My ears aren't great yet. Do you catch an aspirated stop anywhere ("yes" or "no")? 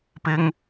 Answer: no